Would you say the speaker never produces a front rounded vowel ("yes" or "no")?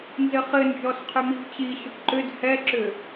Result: no